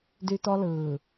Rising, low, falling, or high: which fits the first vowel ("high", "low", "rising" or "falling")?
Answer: high